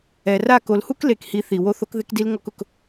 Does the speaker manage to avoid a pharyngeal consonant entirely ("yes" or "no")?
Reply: yes